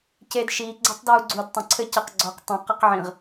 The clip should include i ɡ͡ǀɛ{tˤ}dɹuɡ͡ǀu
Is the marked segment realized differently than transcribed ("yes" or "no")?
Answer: no